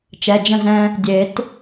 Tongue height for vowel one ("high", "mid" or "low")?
mid